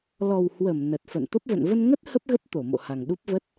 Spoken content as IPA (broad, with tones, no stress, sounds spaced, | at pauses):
l ɔ˨˩ w h w ə˧˩ m n ə˨˩ t̚ f ə̰˧˨ n t̪ ə˦˥ p̚ v ə̰˧˨ n v ə˧ n ŋ ə˦˥ t̚ h ə˦˥ p̚ ɣ ə˦˥ p̚ t̪ o˧˩ m o̰˧˨ h a˨˩ ŋ ɗ u˦˥ p̚ v ə˦˥ t̚